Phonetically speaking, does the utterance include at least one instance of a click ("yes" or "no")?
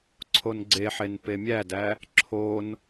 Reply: yes